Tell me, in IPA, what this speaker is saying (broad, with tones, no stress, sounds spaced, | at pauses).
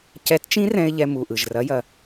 c ɛ˨˥ t t͡ʃ ĩ˦˥ r ɛ̃˧ ɪ̯ ʎ ɛ˧ m u˨˩ ʔ ɯ˨˩ ʒ r ɐ˨˥ j ɐ˨˩